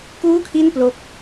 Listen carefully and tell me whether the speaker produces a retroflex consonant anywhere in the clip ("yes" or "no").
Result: no